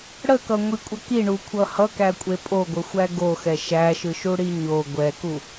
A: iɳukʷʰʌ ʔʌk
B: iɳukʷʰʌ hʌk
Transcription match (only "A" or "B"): B